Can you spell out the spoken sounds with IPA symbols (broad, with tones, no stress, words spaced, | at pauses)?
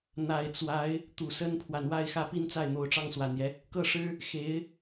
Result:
n̪a˨˩ɪ̯ t͡swa˧˥ɪ̯ | t̪u˨˩sə˥npʰwa˨n wa˥˩ɪ̯ xä˥pi˥nt͡sa˥˩ɪ̯ n̪o˧˥ʊ̯ʈ͡ʂɑ˥˩ŋswa˨˩njɛ˦ | kɤ˥˩ʂɻ̩˥ | xe˧˥ɪ̯